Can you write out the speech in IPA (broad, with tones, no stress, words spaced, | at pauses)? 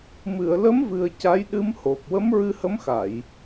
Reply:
mɨ˨˩˨ə̯lə˧˥mvɨ˨˩ə̯ ca˧˥jɗɨ˧˥mho˨˩p̚ wə˧˥mɹɨ˧hə˧˥mxa˨˩˨j